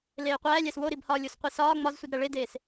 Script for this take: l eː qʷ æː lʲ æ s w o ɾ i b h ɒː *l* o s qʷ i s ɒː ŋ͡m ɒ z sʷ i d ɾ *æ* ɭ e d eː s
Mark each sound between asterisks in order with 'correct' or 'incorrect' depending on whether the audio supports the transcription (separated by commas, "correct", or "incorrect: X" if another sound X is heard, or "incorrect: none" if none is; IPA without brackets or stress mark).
incorrect: lʲ, correct